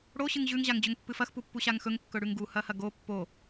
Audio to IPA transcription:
ɽ o ɕ ɨ ŋ ʑ ʉ ŋ ʑ a ŋ d͡ʑ ɵ ŋ pː ɨ f ɐ x p u pː u ɕ a ŋ x ɵ ŋ kː ɵ ɽ ʉ ŋ ɡ u h ɐ h ɐ ɡ o pː o

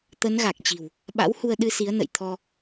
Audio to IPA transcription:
t̪ ə˨˦ n ɣ a˨˩ k̚ t͡ɕ i̤˨˩ w | ɓ a̰˧˥ w h u˧ ə̯ ɗ ɨ˧ s i˨˦ ə̯ n ə̰˧˨ j t̪ʰ ɔ˧

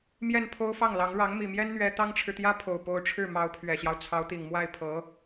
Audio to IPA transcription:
m j ɛ˥˩ n pʰ o˥ ʊ̯ f ɑ˥˩ ŋ l ɑ˧˥ ŋ ɻ ɑ˧˥ ŋ m i˨˩ m j ɛ˥ n n̪ ɥ ɛ˥ t̪ ɑ˥ ŋ ʈ͡ʂʰ ɻ̩˨ t̪ j ä˥ pʰ o˨˩ ʊ̯ p o˧˥ ʊ̯ ʈ͡ʂʰ ɻ̩˥˩ m ɑ˧˥ ʊ̯ pʰ ɥ ɛ˨˩ ɕ j ɑ˦ ʊ̯ t͡sʰ ɑ˧˥ ʊ̯ t̪ i˨˩ ŋ m w a˥˩ ɪ̯ pʰ ɤ˧˥

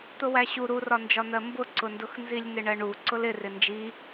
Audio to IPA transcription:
t̪ ʊ w æ ɕ u ɾ u r ɒ n d͡ʒ ɒ n̪ ɜ m b ʊ ǀ ʊ n d ʊ x n z i lʲ n̪ ɪ ɳ ɜ ɳ u ǀ ʊ l ɪ r ɪ n d͡ʒ i

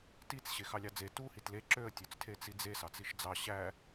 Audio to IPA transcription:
t i t͡s ɕ e x ɑ lʲ ɑ d͡z e t u h i t l e ǁ ø ə̯ tʲ ø t͡s tʰ e t͡s i d͡z e s ɑ t͡s i ʃ d͡z ɑ ɕ æ

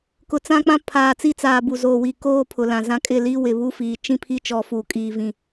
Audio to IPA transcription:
k ʊ˨ t͡s ã˦ k͡p ã˦ pʰ aː˨ t͡s i˦˨ t͡s aː˨ b u˨ z oː˨ w i˨ k oː˦ pʰ ʊ˨ l ã˨ z ã˦ kʼ ɪ˦˨ l i˦ w ɪ˨ β u˦ f iː˨ t͡ʃ ĩ˦ pʰ i˦ t͡ʃ ɔ˨ f u˨ kʼ iː˨ v ĩ˨

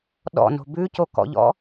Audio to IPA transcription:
ɗ ɔ̰ n o̤ b ʉ c o k ɔ̰ ʎ ɔ̰

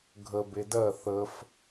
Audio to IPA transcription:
ɡʱ ə b e d ɜ θ ə f

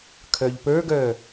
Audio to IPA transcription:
kʰ œ ʎ p ə˞ ɡ œ

